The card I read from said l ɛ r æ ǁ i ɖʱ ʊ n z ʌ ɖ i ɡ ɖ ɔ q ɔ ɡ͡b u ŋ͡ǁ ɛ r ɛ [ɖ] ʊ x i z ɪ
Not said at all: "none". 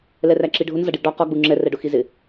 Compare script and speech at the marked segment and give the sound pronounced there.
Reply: ɖ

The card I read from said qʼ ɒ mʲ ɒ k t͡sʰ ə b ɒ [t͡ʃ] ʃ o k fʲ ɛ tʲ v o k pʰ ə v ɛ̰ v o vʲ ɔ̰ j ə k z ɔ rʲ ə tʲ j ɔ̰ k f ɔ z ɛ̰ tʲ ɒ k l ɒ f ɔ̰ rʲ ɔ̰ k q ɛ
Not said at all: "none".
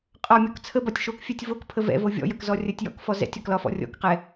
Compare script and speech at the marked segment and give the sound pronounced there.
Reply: tʲ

